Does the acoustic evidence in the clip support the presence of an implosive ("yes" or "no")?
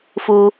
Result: no